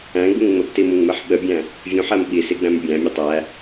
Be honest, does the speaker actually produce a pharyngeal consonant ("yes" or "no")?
yes